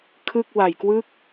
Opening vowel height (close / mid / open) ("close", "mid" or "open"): close